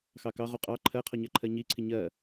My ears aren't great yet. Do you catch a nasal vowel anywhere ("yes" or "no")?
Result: no